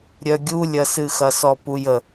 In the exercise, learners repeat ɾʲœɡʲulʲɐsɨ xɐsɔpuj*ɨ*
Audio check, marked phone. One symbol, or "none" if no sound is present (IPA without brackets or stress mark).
ə